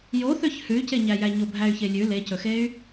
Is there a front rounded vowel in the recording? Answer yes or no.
yes